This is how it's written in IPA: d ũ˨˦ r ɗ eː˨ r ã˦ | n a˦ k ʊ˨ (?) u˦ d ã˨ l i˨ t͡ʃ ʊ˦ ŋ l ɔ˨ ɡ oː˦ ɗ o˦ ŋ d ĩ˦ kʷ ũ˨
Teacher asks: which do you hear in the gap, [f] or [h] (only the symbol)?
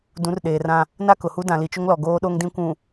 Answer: h